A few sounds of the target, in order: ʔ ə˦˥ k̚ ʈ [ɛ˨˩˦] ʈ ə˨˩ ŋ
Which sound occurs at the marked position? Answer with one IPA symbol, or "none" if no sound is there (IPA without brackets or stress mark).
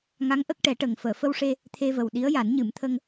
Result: ɛ˨˩˦